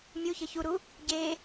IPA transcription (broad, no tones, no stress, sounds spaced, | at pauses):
mʲ u ç ə ç u ɾ u | ɟ e